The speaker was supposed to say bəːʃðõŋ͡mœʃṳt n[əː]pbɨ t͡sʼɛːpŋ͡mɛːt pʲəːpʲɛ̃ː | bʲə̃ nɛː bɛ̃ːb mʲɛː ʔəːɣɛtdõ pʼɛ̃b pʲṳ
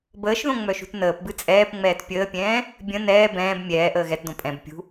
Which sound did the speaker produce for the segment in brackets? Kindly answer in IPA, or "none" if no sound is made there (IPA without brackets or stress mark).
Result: əː